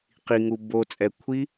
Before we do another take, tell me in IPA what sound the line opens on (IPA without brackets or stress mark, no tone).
q